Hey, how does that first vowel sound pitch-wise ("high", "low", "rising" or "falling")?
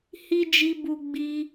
high